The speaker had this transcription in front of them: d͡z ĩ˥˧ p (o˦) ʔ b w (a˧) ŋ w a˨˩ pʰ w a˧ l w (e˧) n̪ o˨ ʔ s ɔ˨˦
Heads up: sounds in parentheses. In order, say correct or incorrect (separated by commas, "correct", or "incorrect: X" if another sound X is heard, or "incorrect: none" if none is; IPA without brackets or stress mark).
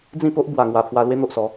correct, incorrect: a˨˩, incorrect: e˦